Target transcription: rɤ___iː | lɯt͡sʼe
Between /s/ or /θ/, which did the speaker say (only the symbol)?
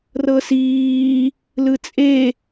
s